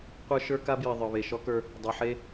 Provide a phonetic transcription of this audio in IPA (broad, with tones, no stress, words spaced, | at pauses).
qʷə˞˦ʃə˞˦ka˦bji˨ ðˤə˞˨βe˨ʃɔ˦kə˞˦ | dˤe˨ħe˦